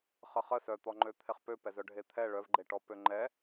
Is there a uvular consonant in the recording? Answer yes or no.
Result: yes